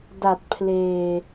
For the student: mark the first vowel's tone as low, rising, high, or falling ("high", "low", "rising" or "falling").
low